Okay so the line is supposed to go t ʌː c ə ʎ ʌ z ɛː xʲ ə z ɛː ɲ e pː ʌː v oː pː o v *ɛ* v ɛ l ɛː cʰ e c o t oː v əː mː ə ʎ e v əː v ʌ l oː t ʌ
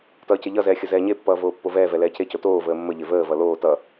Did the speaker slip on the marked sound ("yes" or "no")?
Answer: yes